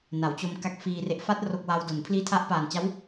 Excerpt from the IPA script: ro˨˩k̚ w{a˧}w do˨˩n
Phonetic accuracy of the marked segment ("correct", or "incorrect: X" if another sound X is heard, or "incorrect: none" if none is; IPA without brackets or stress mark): correct